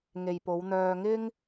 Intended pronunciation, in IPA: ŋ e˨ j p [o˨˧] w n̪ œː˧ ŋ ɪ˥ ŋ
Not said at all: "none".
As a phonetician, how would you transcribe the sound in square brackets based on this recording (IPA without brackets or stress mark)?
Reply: o˨˧